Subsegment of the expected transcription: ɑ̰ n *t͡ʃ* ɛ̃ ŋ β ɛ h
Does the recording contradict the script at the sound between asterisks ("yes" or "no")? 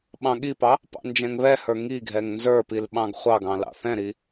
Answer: yes